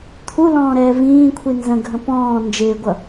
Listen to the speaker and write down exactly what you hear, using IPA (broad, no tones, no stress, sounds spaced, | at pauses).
t̪ʰ u l ɔ̃ː ɾ ɛː v ĩː kʷʰ i n z ə̃ ɡʱ ə̃ p ɔ̃ː n d͡ʒ ɪː ɡʷ ʌ